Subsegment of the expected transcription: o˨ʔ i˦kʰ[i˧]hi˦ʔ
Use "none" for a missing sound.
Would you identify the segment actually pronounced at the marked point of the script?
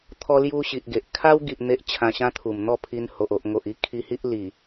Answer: i˧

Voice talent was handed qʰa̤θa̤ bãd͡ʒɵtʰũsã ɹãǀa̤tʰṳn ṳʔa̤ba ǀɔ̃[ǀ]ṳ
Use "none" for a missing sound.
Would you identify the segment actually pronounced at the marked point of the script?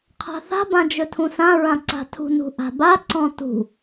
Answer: t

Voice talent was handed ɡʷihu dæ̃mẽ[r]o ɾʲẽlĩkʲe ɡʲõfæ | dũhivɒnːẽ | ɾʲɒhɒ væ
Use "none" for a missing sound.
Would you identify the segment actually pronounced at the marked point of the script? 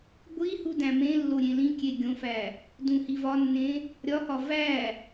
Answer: lː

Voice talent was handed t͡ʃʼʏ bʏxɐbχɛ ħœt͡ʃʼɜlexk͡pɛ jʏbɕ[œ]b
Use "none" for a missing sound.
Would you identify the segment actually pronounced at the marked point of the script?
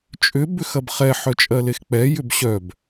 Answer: œ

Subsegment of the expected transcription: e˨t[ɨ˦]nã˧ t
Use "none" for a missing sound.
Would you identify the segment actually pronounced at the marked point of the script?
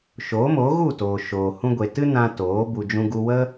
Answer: ɨ˦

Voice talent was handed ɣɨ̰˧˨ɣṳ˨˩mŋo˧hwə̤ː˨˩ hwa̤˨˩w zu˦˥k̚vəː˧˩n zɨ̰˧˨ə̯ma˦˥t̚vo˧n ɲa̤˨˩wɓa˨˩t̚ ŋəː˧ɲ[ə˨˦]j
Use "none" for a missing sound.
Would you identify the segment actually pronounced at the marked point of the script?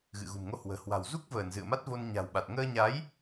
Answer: a˨˦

